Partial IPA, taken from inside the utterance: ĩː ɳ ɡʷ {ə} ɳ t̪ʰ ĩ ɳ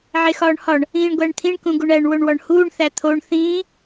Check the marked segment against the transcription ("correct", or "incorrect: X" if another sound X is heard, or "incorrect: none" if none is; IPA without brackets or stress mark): incorrect: æ